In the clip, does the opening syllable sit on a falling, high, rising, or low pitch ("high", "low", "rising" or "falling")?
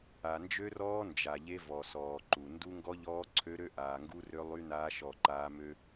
low